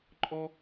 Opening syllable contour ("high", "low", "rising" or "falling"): high